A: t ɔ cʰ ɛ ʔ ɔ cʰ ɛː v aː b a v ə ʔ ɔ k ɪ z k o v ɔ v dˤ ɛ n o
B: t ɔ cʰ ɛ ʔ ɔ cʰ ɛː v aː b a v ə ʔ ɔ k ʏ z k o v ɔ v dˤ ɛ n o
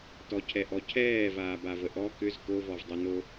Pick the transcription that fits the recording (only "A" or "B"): B